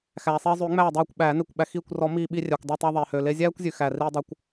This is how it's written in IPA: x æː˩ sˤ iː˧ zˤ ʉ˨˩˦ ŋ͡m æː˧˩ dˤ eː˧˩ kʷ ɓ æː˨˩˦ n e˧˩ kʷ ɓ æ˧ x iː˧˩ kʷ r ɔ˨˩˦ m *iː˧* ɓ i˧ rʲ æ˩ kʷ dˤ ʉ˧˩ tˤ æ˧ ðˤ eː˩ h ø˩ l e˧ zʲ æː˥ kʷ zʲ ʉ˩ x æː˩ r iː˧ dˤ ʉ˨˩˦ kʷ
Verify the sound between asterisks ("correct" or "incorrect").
correct